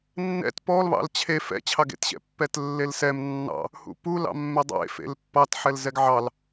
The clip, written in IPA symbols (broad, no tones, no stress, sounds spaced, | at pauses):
nː ɛ̰ t p ɔ l β ɑ̰ l t͡ɕʰ e f ɛ̰ t͡ɕʰ ɑ ɡ ḛ t ɕ ɛ̰ pː ɛ t lː e l s ɛ m nː ɑ̰ | h ṵ p u l ɑ̰ mː e dˤ ḛ f ḛ l pː ɑ t ħ ɛ l z ɛ ɡ ʕ ɑ l